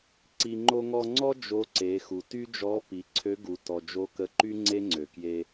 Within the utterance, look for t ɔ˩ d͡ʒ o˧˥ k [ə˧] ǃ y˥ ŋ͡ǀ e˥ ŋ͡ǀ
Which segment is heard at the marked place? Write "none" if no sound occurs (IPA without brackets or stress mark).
ə˧